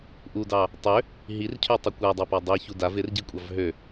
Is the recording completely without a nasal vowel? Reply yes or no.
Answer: yes